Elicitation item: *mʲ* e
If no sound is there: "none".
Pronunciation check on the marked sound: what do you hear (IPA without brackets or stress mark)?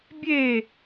bʲ